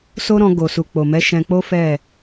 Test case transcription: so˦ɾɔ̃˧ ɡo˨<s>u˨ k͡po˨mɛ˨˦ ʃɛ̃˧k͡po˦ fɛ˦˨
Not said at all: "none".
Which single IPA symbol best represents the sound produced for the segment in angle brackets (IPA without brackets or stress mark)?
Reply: s